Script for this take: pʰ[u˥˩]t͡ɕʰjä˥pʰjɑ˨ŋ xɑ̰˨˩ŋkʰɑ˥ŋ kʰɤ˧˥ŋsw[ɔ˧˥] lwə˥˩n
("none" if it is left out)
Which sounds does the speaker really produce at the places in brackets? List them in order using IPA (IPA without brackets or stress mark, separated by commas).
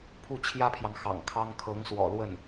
u˥˩, ɔ̰˨˩